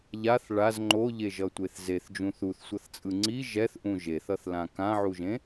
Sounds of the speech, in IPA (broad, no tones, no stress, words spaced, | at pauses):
ʎaθ ɭaz ŋ͡ǃoʎeʒʌtʷeθ zeθd͡ʒũ θuθsʷʌθt͡sʼɯ ŋ͡ǀi ʒɛθʔũ ʒeθʌθlã kãʕuʒẽ